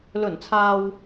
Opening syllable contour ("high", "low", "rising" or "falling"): low